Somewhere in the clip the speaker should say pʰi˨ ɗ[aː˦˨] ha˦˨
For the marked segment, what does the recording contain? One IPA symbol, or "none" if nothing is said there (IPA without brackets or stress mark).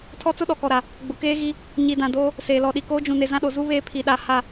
a˦˨